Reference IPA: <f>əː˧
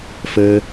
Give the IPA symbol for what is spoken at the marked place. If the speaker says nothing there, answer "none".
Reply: f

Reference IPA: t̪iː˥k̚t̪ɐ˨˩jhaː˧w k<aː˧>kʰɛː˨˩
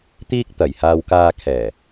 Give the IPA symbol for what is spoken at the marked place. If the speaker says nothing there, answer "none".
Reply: aː˧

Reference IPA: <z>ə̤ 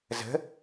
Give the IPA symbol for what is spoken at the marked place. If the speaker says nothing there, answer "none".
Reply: z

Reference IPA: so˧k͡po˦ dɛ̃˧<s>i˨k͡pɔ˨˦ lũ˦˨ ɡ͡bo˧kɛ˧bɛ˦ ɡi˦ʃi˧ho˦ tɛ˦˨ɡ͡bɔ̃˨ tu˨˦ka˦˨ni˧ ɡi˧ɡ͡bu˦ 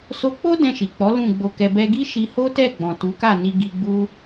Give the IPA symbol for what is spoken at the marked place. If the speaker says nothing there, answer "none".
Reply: ʃ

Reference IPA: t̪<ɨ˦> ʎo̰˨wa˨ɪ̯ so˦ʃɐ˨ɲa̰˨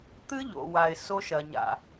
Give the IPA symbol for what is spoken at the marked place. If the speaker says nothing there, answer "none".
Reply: ɨ˦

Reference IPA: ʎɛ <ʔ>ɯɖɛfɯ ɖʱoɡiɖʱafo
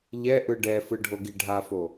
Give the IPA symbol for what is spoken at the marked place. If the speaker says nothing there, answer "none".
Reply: ʔ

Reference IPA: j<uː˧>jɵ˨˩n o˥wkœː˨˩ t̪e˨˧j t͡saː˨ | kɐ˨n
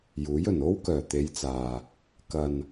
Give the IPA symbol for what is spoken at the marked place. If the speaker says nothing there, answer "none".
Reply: uː˨˥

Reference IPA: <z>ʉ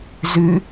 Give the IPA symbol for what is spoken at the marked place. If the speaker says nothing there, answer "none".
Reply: z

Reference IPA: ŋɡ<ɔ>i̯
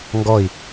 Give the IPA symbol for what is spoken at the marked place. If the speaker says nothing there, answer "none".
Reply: ɔ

